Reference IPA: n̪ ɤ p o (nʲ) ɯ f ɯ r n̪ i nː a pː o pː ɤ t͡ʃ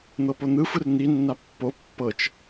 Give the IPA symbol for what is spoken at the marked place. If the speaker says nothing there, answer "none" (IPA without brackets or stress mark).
n̪